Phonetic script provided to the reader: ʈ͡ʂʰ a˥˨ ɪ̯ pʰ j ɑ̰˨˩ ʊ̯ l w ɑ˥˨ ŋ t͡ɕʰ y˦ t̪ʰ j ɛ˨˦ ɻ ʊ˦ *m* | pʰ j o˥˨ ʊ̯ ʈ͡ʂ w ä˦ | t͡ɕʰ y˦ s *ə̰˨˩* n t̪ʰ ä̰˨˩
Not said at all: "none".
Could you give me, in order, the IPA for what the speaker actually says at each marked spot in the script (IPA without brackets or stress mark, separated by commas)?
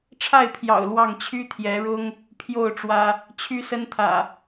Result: ŋ, ə˦